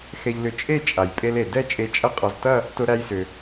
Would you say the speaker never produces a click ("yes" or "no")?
yes